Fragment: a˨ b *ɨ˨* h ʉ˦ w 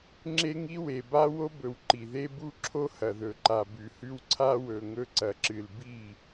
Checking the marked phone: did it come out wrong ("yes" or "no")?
yes